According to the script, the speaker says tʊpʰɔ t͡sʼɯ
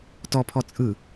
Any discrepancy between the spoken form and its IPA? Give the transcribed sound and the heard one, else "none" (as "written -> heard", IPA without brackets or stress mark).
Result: ʊ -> ɔ